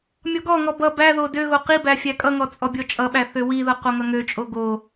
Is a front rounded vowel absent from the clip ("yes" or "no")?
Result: no